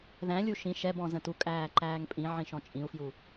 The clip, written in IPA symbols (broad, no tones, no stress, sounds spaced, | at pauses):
ð æ̃ lʲ u ʃ ĩ ʃ ɛ b ɔ̃ z ə̃ t u kʼ æː ǃ æː ŋ pʼ ĩ ʕ ĩ ʃ ɔ̃ t͡ʃʼ ĩ u̯ f j u